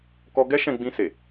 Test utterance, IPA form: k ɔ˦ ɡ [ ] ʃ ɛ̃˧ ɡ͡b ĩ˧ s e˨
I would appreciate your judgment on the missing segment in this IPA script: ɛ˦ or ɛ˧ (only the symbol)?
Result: ɛ˦